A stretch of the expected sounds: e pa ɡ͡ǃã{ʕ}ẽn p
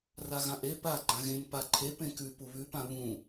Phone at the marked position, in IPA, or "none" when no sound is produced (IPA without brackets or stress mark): ɣ